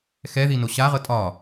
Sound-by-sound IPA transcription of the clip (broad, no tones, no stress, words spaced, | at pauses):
xɛðino ɕaʁɤ tʼɒː